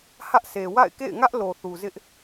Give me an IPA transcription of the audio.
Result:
h ä˦ ʔ sʰ e˨ w a̰˦˨ ɪ̯ k ḛ˦˨ ɪ̯ ŋ ä˦ ʔ l o˨ θ u˨ z ɪ˦ ʔ

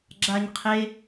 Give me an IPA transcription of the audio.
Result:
ɡ͡ǁ a ɲ qʰ e

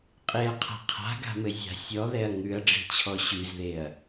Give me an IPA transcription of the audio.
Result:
qʼ e ɐ̯ qʰ a̤ qʰ a̤ ɡ a̤ m ɘ zʲ a̤ sʲ ɔ ð ɛ ɐ̯ ŋ ʉ ɐ̯ ɖ͡ʐ i̤ t͡ɕʰ ɔ ɕ ʉ z ð e ɐ̯

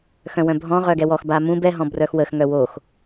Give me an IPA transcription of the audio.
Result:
x œ̃ w œ̃ bʱ ɔ̃ ʁ œ ɡ ɛ w ɔ x b a m ũ b ɛ ɦ ɔ̃ b r œ x w ə x ŋ œ w o x

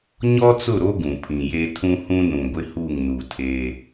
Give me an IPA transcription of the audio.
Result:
ɲ ɔ˦ t͡s ʊ˦˨ ɾ o˦ ɡ ũ˨ pʰ ĩ˨ j e˦ tʰ ũ˦ h ũ˦ n ũ˨ ɡʷ ɪ˦ h u˦˨ ŋ n u˨ tʰ eː˦

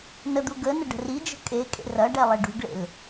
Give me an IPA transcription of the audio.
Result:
n ə d̪ u ɡ ə n ə ɖ ə̤ r i d͡ʒ ə̤ kʼ e kʼ ḛ r ɐ ɖ ɛ lˠ ɛ ɖ ṳ ɡ ɭ ḛ l

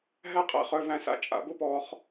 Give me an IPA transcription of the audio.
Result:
ɦ æ˥ qʼ æ̰˧ χ œ˧ v æ̃˧ s a̰˧ t͡ʃʼ a̰˩˧ b ʊ˥ p ɔː˧ χ

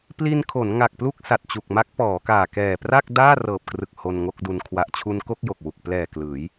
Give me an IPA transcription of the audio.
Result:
p l i˧ n kʰ o˩˦ n ŋ a˨˩ k̚ p l u˥˩ k̚ s a˨˩ t̚ t͡ɕ u˨˩ k̚ m a˦˥ k̚ p ɔː˩˦ k aː˨˩ k ɛː˨˩ p r a˥˩ k̚ d aː˥˩ r ɤː˨˩ p̚ k r ɯ˨˩ k̚ h o˧ n ŋ o˥˩ k̚ d u˧ n kʰ w a˨˩ ʔ t͡ɕʰ u˧ n k o˥˩ k̚ j o˨˩ k̚ w u˨˩ k̚ p l ɛː˨˩ k l ɯː˩˦ j

